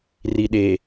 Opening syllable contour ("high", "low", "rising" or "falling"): low